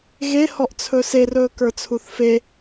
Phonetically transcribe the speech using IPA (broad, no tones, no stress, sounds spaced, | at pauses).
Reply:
ɣ e h ɔ ʔ t͡sʰ ɵ s e r ɵː k ə˞ t͡sʰ u θ f e